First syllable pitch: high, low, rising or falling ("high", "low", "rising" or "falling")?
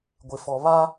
low